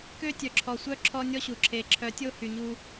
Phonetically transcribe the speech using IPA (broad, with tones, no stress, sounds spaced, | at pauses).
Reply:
k ø˦ tʲ œ˨ ǁʰ ɔ˨ sʷ œ˦ ǁʰ ɔ˦ nʲ ɔ˦ ɕ u˨ ǁʰ e˨ ǁʰ œ˨˦ tʲ o˦ h y˨ ɲ u˦